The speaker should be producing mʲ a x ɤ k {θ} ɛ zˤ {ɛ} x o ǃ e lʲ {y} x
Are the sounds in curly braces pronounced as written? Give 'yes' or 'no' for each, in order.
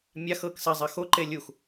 no, yes, no

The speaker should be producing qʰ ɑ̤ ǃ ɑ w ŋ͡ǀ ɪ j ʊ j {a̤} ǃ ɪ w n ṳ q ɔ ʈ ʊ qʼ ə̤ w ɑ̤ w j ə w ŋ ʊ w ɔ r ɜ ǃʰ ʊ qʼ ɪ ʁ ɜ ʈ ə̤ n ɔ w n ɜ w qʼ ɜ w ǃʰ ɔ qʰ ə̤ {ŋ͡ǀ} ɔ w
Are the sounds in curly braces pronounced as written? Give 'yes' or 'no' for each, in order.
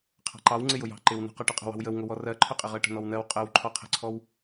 no, no

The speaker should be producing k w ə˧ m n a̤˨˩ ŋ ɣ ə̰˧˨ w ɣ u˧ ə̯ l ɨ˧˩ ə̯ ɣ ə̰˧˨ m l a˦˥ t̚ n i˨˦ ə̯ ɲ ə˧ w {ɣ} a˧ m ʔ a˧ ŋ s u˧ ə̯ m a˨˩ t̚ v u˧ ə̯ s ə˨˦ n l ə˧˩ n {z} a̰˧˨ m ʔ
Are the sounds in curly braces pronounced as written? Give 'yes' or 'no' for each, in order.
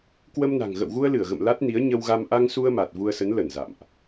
yes, yes

